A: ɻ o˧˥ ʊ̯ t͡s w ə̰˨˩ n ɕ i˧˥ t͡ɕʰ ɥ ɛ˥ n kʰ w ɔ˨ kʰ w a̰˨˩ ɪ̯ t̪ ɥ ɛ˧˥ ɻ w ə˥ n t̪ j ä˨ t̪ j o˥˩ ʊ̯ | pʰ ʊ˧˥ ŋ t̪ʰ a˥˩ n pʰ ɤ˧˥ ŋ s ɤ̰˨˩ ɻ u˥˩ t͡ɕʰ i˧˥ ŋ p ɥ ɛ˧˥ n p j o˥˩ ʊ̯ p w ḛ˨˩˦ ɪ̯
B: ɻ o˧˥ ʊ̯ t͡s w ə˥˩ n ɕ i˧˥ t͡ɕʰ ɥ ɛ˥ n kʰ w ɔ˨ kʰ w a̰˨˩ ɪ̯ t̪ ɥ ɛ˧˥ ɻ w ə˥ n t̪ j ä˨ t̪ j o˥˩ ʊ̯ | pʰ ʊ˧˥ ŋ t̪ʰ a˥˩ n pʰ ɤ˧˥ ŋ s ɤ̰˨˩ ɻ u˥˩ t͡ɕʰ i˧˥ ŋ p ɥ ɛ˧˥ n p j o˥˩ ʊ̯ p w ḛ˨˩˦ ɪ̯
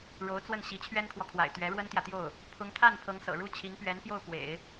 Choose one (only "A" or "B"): B